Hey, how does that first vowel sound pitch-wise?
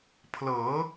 rising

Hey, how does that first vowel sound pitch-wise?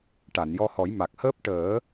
low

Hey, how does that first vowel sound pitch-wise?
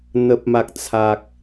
low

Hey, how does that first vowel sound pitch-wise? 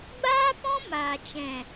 high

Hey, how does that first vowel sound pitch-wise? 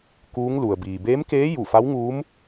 rising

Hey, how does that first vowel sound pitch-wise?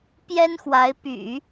high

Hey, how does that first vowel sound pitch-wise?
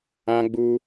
high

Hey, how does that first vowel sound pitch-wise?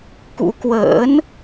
rising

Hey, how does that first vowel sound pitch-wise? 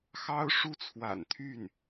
high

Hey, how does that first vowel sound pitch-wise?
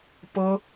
high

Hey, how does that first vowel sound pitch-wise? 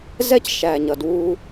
high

